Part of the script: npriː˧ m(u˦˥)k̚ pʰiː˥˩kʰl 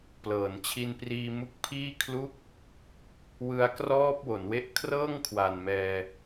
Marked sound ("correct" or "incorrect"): correct